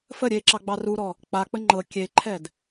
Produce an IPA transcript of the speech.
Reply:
f ə ɾʲ e ǁ ɑ ɡ͡b ɑ r u ɾ ɔ | k͡p a k͡p ə ŋ͡ǃ ɤ kʲ e ǃʰ ɛ d

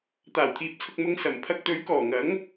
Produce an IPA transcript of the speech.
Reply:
t̪ aː˨˩ w t̪ʰ iː˨ p̚ t͡sʰ ʊ˨ k̚ m ʊ˧ ŋ s ɐ˨˩ m pʰ ɐ˧ k̚ t̪ ɵ˨˧ ɥ k ɔː˨˩ ŋ ɐ˨˥ ŋ

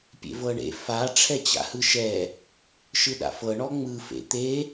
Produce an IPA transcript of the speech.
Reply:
pʲ ḛ v ɤ ɳ ḛ f a ʈ͡ʂʰ ɛ t͡ɕ a̰ h ɯ ʃ ɛ | ʃ ɯ ɗ a̰ f ɤ ɳ ɔ ŋ͡m ɯ f ḛ t̪ e

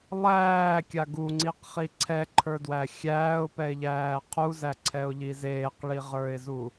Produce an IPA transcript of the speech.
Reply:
lˠ æː kʲ a ɡ u ŋ͡ǀ i q χ i ǀʰ ɛ ǃʰ ə˞ d w æ xʲ æː ʊ̯ p ɛ ɪ̯ ʎ æː qʰ u z æ ǀʰ ɛ ʊ̯ ʎ i z eː q ɭ i ʁ ə˞ ɪ̯ z u

